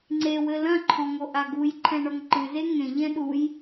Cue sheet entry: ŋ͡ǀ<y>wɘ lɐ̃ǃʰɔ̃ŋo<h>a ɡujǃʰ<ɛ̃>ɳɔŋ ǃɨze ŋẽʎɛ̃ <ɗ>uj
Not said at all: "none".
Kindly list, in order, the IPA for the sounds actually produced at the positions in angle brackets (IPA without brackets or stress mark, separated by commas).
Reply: e, ʔ, ɛ̃, ɗ